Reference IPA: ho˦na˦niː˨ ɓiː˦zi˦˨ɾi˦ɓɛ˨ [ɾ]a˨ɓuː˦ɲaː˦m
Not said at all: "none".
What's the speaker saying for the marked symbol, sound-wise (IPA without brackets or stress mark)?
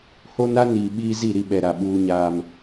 ɾ